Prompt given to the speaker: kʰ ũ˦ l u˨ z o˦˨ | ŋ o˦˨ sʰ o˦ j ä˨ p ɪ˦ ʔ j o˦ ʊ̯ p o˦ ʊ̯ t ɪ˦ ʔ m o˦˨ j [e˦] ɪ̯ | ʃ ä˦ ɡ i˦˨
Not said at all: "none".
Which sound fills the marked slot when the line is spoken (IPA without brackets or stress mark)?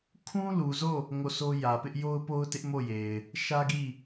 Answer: e˨